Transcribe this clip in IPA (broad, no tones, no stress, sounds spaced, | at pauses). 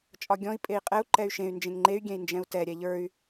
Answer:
t͡ʃʼ ɒ ɡʲ ɔ̃ i̯ pʼ e i̯ qʼ ɛ u̯ ǃ ɛ y̯ ʃ ẽ y̯ n d͡ʒ ẽ ŋ ŋ͡ǃ e y̯ ɡʲ ɛ̃ i̯ n d͡ʒ ɛ̃ u̯ t ɛ ɾʲ ɛ ʎ ə˞ y̯